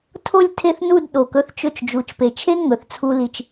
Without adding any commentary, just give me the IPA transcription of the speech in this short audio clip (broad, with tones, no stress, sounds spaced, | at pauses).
tʰ o˥˧ lʲ tʰ e˥˧ θ n u˥˧ d ɗ o˧˩ k ɵ˥ θ t͡ʃ ɵ˥˧ t͡ʃ d͡ʒ u˧ t͡ʃ p e˧˩ t͡ʃʰ e˥ ŋ ɵ˩˧ θ t͡sʰ u˧ l i˧ t͡ʃ